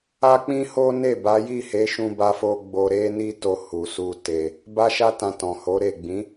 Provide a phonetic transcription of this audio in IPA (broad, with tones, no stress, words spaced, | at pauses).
a˦k͡pĩ˦ho˦ ne˦˨ ba˨˦ji˦˨he˨˦ ʃũ˧ba˧fo˧ ɡ͡bo˧ɾe˦ni˦ to˧hu˨su˧ te˧ | ba˧ʃa˧tã˨ tɔ̃˨ho˨˦ ɾe˦˨ ɡ͡bĩ˨˦